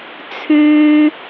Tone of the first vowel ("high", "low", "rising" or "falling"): high